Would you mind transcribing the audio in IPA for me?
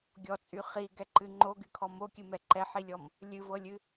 ɡʲ ɔ t͡sʼ y χ i ɡ ɛ ǃ ɨ ŋ͡ǃ o ɡ y kʰ ɔ m o kʲ ɨ m ɛ ǃ ɛ ħ i lʲ ɔ m | lʲ ɨ v ɤ lʲ ɨ

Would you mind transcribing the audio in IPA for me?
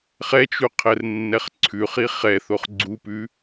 χ ɛ t͡ʃ u qʰ ɛ r nː ɛ χ ǀʰ ʉ χ i χ ɛ θ o χ ɡ͡ǀ u p ʉ

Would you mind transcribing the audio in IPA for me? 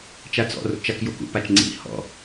t͡ʃ a t͡s ɔ̰ r o̰ t͡ʃ a k j o k ṵ p a t͡ʃ ŋ͡ǀ ḭ h ɔ̰

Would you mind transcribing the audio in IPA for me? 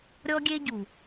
ɾʲ ɔ˦ ɡʲ e˦ ɟ u˨

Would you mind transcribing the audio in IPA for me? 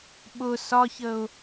ɓ ʊ s ɒ ç ə ʊ̯

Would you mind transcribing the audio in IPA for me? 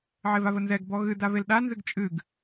ʕ e v a v ə n z ɛ ɡ b ɔ ɣ ɨ d a v e l ɗ a n z ɨ ɡ t͡ʃʼ ɨ ɡ

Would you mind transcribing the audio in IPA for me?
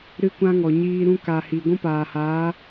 ɾ ɨ˦ kʷ ã˦ ŋ ɔ˨ ɲ iː˧ ɾ ũ˧ k a˨ h i˨ ɡʷ ũ˦ p aː˨ h aː˨˦

